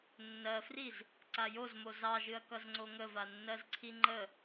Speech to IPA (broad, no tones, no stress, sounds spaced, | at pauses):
nː ɜ f r i z | ǀ a j o z m o z ɑ ʒ ɨ ɐ̯ k ʌ z ŋ͡ǀ o ŋ ə v a nː ɜ z ǀʰ i ŋ͡ǃ ə